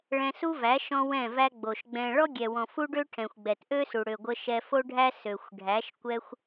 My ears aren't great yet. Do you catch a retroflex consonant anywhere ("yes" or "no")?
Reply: yes